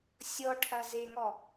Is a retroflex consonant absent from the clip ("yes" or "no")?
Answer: no